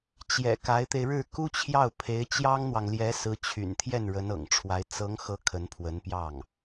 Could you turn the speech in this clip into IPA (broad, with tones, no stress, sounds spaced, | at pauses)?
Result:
t͡ɕ j ɛ̰˨˩ k a˧˥ ɪ̯ t̪ e˧ ɪ̯ ɻ ɻ̩˥˩ k u˥ t͡ɕʰ j ɑ˥˩ ʊ̯ pʰ e˧˥ ɪ̯ t͡ɕ j ɑ˥ ŋ n̪ w ɑ˨ ŋ l j ɛ˧˥ s ɹ̩˧˥ t͡ɕʰ y̰˨˩ n t̪ʰ j ɛ˥˩ n ɻ ə˧˥ n ɤ̰˨˩ ŋ ʈ͡ʂʰ w a˧˥ ɪ̯ t͡s ɤ˧˥ ŋ x ɤ˧˥ kʰ ə˧˥ n pʰ w ə˧˥ n p j ɑ˥˩ ŋ